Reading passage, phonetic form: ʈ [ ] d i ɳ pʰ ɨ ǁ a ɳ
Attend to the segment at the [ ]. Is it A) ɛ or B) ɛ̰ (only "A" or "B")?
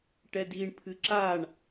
A